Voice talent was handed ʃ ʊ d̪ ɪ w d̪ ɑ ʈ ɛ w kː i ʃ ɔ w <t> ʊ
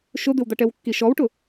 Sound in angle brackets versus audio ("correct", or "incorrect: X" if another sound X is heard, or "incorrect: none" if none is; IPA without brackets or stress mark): incorrect: ʈ